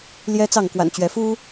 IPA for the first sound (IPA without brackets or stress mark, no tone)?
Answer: l